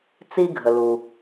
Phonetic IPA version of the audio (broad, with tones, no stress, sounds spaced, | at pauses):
t͡s i˥ ɡʱ ə˩ l u˩